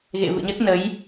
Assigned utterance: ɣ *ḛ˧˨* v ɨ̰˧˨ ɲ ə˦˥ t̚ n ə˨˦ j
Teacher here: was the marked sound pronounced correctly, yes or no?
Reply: yes